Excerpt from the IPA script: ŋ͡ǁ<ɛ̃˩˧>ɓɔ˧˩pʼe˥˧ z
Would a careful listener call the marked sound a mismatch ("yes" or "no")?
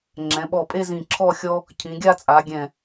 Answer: no